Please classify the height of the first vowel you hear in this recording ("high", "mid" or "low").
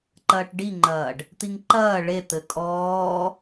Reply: low